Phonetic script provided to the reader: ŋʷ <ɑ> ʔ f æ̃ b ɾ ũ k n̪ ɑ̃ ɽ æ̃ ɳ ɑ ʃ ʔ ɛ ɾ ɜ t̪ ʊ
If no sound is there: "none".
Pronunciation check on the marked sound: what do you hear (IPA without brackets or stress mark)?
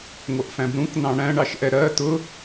ʌ